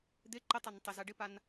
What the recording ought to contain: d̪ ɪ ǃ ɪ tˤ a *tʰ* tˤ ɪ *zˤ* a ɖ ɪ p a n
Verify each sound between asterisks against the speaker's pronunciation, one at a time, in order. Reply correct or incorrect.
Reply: incorrect, incorrect

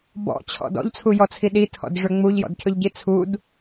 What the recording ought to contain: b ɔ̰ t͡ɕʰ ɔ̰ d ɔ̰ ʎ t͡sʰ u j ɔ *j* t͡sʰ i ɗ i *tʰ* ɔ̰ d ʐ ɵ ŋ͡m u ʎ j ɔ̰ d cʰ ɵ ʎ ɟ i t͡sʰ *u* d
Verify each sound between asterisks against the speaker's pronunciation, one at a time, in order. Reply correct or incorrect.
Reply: incorrect, correct, correct

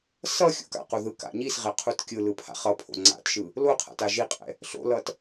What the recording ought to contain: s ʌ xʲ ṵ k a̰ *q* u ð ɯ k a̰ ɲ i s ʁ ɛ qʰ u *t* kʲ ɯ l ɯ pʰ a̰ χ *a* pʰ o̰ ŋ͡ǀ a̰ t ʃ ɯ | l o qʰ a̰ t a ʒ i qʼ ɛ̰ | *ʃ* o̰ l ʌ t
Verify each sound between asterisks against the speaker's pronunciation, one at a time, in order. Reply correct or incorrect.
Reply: correct, correct, incorrect, incorrect

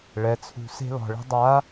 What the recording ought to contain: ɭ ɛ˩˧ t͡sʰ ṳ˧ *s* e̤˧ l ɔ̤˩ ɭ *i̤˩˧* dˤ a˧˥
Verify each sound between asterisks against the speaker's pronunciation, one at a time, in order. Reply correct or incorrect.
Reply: correct, incorrect

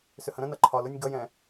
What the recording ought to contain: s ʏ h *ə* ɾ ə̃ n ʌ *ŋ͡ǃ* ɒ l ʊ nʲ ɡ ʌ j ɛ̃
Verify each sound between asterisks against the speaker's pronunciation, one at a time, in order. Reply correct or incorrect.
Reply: incorrect, incorrect

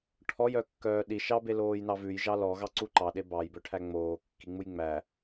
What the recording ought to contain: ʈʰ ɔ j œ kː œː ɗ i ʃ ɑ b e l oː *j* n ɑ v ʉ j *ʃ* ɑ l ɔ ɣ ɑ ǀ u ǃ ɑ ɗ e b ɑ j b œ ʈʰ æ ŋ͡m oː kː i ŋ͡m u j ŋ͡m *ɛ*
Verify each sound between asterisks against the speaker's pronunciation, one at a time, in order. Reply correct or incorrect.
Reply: correct, incorrect, incorrect

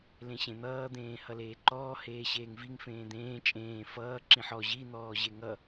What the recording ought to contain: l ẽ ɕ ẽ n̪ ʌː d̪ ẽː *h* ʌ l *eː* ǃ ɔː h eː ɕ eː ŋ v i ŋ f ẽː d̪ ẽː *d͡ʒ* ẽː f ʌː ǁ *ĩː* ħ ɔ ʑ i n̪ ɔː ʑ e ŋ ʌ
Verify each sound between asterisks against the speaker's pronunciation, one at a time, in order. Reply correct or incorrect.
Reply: correct, correct, incorrect, incorrect

